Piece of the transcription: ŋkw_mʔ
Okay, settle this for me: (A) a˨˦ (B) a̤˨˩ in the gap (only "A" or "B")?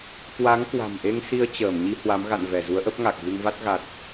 B